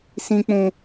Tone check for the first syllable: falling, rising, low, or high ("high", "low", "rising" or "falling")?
high